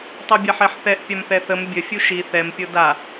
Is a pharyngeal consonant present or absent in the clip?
present